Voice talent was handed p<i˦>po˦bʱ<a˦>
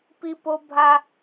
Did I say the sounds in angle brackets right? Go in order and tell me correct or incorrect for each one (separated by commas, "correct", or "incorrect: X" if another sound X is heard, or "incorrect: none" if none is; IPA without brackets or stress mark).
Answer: correct, correct